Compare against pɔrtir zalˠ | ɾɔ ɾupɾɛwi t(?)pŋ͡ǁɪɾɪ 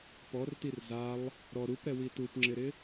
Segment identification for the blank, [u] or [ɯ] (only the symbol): u